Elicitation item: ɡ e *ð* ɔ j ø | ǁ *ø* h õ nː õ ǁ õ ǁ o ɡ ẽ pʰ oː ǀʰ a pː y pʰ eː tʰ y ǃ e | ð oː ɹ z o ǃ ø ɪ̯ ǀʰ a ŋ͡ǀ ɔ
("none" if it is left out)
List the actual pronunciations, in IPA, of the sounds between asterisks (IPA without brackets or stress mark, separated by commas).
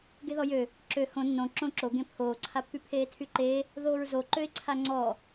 ð, ø